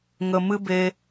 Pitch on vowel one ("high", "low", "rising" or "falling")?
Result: low